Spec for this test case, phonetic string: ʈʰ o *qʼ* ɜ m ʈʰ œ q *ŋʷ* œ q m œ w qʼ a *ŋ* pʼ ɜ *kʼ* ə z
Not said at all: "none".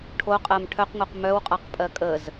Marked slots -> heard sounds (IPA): qʼ, ŋʷ, q, kʼ

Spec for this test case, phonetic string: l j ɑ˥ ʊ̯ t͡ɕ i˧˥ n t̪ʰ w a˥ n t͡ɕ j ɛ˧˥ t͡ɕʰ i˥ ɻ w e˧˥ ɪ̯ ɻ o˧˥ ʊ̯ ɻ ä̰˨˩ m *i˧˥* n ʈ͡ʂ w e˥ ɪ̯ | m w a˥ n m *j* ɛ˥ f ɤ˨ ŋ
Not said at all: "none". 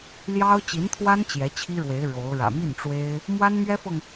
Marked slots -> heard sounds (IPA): i˥˩, ɥ

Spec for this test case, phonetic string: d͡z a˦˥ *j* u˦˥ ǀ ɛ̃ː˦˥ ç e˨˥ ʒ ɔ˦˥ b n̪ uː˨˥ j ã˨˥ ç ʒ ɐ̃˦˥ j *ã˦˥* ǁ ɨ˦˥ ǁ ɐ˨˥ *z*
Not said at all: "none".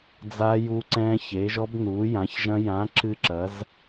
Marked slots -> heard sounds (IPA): j, ã˨˥, z

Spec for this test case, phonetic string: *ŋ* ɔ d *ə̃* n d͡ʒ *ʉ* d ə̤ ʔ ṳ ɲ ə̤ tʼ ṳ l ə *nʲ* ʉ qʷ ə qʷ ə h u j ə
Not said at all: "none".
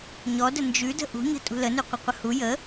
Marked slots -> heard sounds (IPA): ɲ, ə, ʉ, n

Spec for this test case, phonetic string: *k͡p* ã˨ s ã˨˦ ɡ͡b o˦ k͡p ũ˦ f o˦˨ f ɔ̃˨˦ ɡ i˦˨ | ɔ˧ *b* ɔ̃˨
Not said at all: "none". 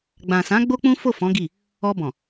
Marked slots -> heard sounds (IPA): ɡ͡b, b

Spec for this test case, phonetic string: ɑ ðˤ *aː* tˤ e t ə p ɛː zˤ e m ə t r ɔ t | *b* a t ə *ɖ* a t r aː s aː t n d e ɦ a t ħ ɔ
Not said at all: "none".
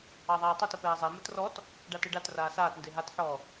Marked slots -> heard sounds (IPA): aː, ɖ, ɖ

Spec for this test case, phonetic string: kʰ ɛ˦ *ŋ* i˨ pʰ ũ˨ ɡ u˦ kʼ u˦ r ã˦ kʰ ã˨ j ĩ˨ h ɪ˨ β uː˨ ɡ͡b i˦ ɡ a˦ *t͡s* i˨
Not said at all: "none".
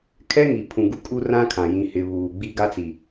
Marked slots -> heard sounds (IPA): ŋ, t͡s

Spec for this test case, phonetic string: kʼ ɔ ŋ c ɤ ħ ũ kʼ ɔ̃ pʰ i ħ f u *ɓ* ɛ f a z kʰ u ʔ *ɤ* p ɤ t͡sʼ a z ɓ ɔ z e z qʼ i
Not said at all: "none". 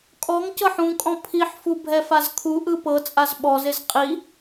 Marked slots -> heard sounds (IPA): bʱ, ɯ

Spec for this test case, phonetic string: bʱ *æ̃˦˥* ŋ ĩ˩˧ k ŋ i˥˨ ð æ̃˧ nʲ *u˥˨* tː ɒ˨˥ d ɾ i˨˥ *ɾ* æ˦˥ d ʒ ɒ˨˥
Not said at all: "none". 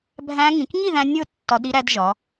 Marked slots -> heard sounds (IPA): æ̃˦˥, o˥˨, ɾ

